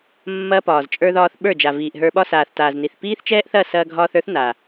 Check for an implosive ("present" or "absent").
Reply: present